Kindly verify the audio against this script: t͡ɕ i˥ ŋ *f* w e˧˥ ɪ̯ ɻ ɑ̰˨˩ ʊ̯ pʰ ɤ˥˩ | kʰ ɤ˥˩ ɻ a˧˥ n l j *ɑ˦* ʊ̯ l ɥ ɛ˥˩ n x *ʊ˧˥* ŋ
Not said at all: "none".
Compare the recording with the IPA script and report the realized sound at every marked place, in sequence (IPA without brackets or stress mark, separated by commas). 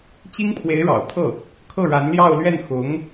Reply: pʰ, ɑ˥˧, ʊ˧˥